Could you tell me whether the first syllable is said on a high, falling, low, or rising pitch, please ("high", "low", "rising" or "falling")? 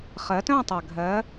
rising